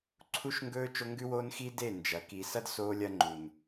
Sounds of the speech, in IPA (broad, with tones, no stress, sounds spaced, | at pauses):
ǀʰ u˦ ʃ ŋ ɡ ɵː˦ t͡ʃ o˦ ŋ ɡ ʉ˦ w oː˦ n x i˦ d e˦˨ n d͡ʒ ɐ˨ k i˨ s ɐ˦ d s oː˦ lʲ ɐ˦ ŋ͡ǃ u˨ n